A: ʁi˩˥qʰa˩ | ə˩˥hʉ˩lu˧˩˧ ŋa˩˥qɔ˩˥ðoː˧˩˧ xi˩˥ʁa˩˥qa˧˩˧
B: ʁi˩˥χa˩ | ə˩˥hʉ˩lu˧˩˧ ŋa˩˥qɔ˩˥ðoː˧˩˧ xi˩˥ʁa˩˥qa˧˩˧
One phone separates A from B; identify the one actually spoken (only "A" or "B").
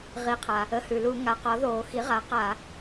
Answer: A